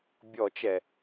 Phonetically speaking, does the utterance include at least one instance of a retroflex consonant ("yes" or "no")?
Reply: no